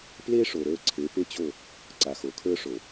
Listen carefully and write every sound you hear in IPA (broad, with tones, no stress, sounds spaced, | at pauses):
p l e˦ ʂ o˨ ɾ ə˞˦˨ ǀʰ e˨˦ p e˦ t͡ɕ o˦˨ | ǀ a˨ x o˨ kʰ ə˞˦ ʂ o˨